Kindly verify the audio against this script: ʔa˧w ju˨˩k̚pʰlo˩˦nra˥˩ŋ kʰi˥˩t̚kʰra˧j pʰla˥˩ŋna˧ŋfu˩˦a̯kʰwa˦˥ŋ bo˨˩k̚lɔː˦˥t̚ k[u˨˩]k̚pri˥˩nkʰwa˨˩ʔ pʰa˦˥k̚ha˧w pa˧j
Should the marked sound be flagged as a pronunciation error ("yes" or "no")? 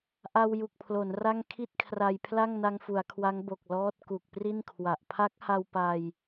no